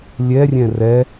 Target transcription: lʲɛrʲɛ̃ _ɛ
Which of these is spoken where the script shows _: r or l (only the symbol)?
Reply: r